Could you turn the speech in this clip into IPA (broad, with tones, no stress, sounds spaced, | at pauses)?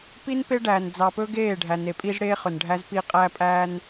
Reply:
p i˦ n p e˦ ɖ æː˨ n d͡z ɑ˨ p ɵ˦ ɡ eː˦˨ ɖʱ æ˨ n e˨ pʼ i˦ z ɽ eː˦ χ ɵ˨ n ɖʱ æ˦ z p i˦ qʼ æ˦ pʼ æː˦ n